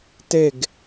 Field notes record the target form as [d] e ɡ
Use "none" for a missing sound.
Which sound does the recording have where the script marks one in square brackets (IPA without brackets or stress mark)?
t